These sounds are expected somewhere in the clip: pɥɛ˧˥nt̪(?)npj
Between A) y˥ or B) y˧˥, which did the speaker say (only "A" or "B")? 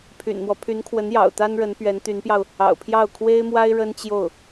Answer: B